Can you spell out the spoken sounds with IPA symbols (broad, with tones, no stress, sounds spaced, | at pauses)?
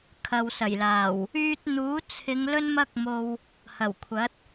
kʰ ɐ˨ w s ɐ˨˩ j l aː˨˩ w | yː˧ t̚ n̪ uː˨˥ t͡sʰ ɪ˨˧ ŋ l ɵ˥ n m ɐ˥ k̚ m o˧ w | h ɐ˨˩ w kʷʰ ɐ˨˥ t̚